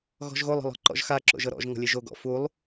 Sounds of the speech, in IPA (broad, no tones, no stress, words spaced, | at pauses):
ɣɔ̤ʒɣolˠ ɔ̤lˠɔ̤ǃɔ̰ʒxa ǁo̰ʒɤɾɔ̰ʒ ŋɔ̤lʲeʒo ɡɔ̰ fulˠ